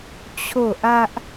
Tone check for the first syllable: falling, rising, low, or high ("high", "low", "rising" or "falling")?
falling